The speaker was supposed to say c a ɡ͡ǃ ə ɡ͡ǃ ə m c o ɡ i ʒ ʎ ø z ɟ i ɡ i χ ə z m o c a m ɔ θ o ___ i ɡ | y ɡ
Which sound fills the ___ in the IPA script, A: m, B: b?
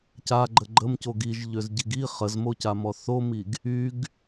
A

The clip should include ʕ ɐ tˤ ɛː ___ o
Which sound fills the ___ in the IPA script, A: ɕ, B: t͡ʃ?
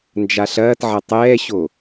A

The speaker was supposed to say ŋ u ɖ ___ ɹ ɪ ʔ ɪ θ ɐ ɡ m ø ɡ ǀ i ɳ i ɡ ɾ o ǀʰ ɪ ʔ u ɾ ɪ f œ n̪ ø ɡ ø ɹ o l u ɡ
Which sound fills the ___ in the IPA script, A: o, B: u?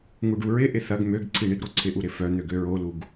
B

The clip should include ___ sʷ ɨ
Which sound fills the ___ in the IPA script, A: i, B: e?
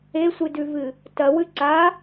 B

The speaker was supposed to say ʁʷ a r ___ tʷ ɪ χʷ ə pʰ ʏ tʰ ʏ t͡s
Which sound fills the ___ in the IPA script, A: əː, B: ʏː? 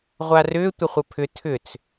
B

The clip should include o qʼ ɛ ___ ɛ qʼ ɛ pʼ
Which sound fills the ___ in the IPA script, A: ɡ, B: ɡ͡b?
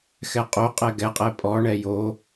A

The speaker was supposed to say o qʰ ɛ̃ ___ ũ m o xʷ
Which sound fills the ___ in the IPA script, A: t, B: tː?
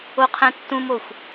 B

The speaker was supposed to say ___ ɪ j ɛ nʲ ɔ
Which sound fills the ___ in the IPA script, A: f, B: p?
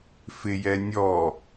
A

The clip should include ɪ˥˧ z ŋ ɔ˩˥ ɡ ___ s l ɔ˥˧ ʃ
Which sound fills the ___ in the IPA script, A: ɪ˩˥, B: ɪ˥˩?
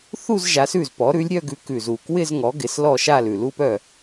A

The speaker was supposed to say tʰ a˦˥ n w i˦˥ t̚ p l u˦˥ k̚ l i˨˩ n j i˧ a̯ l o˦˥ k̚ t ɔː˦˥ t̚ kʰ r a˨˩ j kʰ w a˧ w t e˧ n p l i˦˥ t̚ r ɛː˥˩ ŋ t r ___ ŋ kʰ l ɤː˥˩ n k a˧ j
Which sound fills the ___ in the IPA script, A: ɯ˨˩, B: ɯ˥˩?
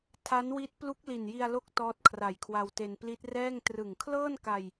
A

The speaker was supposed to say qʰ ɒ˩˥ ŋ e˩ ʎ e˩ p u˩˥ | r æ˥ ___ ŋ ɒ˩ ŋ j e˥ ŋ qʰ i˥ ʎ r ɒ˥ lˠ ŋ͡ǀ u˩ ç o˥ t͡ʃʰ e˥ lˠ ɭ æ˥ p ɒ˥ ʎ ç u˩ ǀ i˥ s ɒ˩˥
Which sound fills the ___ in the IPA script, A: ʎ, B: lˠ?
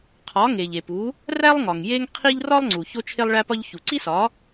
B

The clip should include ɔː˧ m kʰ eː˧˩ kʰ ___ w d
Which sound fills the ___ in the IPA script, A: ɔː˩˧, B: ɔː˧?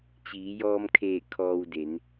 B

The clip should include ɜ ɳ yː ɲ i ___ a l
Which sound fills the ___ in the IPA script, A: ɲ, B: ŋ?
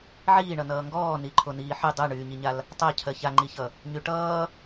A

